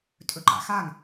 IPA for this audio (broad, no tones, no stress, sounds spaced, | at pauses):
tʼ ɵ ǃ a̰ x a ŋ